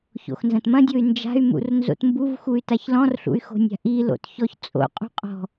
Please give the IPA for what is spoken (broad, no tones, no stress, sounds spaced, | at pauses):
ç o̰ x n z ɐ̃ t m ɐ̃ dʲ o y̯ n d͡ʒ a̤ y̯ m ṵ r n z o̰ t m b u v x u y̯ t a ç l ɔ̃ r ɬ ṵ y̯ x o̤ nʲ a̤ ʔ i l o̰ t ç ɔ ç t͡sʼ o̰ qʼ ṳ qʼ ɔ̤